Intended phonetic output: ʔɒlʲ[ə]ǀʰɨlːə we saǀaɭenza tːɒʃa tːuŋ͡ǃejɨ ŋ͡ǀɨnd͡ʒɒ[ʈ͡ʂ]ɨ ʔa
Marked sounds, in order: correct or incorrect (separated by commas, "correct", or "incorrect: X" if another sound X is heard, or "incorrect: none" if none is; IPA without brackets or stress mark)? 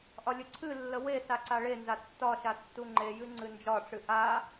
correct, correct